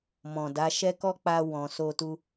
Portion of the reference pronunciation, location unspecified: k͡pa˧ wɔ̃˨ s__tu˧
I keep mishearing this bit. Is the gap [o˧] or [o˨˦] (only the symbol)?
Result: o˧